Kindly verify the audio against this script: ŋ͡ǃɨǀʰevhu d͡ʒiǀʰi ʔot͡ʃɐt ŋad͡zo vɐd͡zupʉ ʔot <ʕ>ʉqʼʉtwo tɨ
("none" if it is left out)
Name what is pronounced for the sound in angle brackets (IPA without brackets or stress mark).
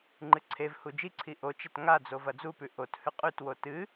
h